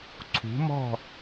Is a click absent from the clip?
no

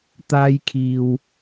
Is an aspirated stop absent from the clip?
no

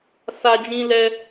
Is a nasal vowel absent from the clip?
no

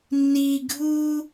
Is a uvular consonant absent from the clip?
yes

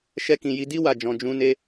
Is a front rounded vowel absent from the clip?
yes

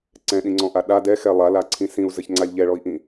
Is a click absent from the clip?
no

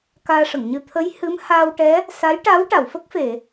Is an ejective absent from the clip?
yes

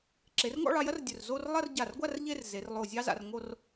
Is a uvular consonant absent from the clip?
yes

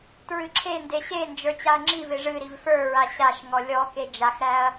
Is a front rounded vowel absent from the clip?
yes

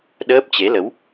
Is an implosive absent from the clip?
no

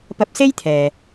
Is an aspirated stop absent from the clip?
no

